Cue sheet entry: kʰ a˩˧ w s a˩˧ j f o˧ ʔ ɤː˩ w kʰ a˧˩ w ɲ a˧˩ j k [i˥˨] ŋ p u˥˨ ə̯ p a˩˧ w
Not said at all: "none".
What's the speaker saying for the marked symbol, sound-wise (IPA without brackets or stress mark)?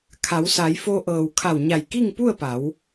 i˥˨